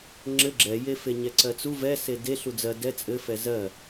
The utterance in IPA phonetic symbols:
ŋ͡ǁɘ ɡ͡ǁɛje feɲɛǀɜt͡su vɛ sede ɬud͡zɜ dɛ t͡sʼɘfɛ zɜ

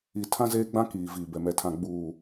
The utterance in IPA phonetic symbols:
i˨ tʰã˦zeː˦ɡ͡bã˦ kiː˨ viː˨bɛ˨mɛ˨tʰã˨ ɡ͡buː˨

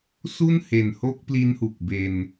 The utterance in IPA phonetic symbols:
su˥˩nhe˨˩nho˦˥k̚ pli˦˥nhu˨˩k̚be˧n

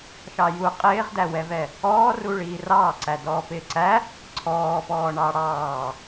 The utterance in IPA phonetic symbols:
ʃɑju qʼɪːʁdæwɛvɛ | ɔːru ɭiːrɑːǀæ dɔːpɪːǀæ | ǀʰɔːpɔː ɳɑɽɑː

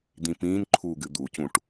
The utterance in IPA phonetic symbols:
d̪ĩpĩːnǃʰuːɡ ɨd̪ucũʈ

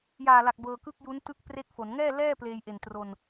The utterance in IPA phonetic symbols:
jaː˨˩la˨˩k̚ bɤː˧kɯ˥˩k̚ju˦˥n tɯ˥˩k̚pre˥˩k̚fo˩˦n ŋɛː˥˩lɛː˥˩ pleː˧jʔe˨˩ntro˧n

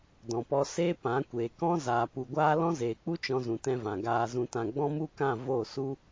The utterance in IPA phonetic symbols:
dɔ̃˨pɔ˧seː˦ pã˨˦ kʷeː˨ kɔ̃˦ zaː˨pu˨ɡʷaː˦ lɔ̃˦zeː˨k͡pu˦ t͡ʃɔ̃˧zũ˨tɛ̃˧vã˨ ɡaː˧zũ˧tã˧ ɡ͡bɔ̃˦mu˦kã˦˨ vo˦˨su˦

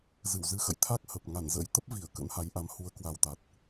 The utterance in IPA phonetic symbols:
zɨ˧˩wzɨ˧ xə̰ː˧˨j t̪ʰa˦˥k̚ hə˨˩p̚ ŋa˧˩nzə̰˧˥j t̪ə˦˥p̚vi˧˩ə̯ kə̰˧˥nha˨˦jʔa˨˦m hu˨˦ə̯kwa˨˩wt̪a˨˩t̚

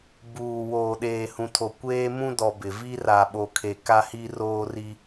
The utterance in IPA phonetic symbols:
buː˨ woː˨ɗeː˨hũ˨tʰo˨ kʷeː˦mũ˦ dɔ˨ bɪ˨ vi˦ra˨ɓo˨kʰe˨ ka˦hi˦roː˦ri˦

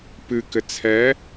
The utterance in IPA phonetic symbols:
pɨkɘ t͡sʰɛ

